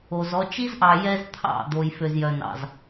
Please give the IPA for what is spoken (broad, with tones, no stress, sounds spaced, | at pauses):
o˨ z ɔ˦ t͡ʃ i˦ z ʔ ɑ˨ j ɛ˦ z t̪ʰ ɑ̰˦˨ d̪ o˨ j f ø˨ z j œ˨ n ɑ̰˨ z